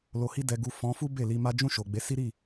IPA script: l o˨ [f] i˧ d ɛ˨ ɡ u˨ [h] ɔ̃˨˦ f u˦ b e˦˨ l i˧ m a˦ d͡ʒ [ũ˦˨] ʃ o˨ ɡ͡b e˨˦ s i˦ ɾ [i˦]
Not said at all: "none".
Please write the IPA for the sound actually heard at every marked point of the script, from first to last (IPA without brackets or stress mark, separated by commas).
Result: h, f, ũ˦˨, i˦˨